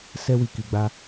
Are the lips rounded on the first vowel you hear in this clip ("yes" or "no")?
no